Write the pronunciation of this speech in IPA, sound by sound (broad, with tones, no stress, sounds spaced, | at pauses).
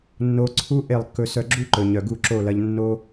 nː o˦ ǀʰ u˦ ʔ e˦˨ lˠ kː ɵ˧ s œ˧ ɡ͡ǁ u˦ ǃ ɵ˨ ɲ œ˨ ɡ u˦˨ ǁ o˦˨ l ɐ˧ ʎ nː o˧